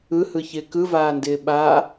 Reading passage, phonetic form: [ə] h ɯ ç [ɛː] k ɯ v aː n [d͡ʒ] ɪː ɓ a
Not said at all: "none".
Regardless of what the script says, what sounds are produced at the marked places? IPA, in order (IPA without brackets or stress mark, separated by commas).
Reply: ɯ, ɪː, d